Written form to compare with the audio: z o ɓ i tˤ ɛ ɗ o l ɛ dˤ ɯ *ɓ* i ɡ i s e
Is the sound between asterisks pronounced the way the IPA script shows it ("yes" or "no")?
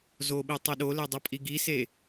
no